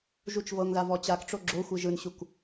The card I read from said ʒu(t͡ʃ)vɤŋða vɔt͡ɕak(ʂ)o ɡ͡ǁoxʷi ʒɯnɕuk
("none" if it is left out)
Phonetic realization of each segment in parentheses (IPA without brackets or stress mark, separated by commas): t͡ʃ, ʈ͡ʂ